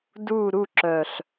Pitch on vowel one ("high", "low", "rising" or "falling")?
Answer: falling